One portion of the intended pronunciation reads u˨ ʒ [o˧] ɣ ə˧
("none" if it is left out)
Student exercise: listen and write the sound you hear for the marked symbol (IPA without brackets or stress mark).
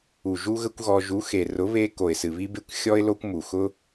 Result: u˧